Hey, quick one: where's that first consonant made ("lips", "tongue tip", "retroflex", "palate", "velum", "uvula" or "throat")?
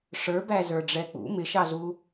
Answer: retroflex